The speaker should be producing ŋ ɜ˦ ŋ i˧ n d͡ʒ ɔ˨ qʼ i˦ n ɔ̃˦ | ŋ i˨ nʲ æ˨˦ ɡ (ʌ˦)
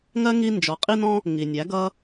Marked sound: correct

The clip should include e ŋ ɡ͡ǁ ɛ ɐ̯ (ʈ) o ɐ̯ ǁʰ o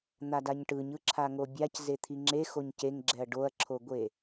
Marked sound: incorrect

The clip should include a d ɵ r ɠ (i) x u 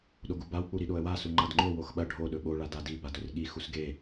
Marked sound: correct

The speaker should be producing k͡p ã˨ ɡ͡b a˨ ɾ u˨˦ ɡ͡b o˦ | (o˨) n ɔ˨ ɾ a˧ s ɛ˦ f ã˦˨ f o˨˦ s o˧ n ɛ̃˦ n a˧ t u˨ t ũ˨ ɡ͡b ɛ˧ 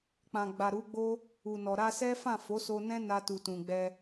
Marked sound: incorrect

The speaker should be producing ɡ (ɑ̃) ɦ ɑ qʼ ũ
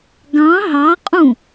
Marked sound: correct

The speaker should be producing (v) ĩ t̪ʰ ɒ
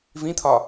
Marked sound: correct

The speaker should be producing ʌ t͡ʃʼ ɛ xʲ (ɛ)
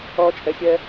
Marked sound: correct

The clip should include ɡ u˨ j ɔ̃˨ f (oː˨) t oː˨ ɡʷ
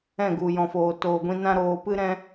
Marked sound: correct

